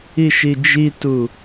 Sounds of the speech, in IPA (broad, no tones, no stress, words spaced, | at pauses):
iʃid͡ʒitu